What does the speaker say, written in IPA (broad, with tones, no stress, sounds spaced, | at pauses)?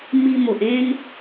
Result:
m i˧ m o˨ ʔ ẽ˦ n